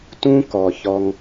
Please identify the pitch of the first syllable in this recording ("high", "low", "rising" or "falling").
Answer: high